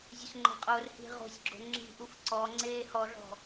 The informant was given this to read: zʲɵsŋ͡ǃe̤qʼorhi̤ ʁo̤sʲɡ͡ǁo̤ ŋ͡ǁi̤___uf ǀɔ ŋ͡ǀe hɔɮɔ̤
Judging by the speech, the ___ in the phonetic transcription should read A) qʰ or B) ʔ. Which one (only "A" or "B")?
B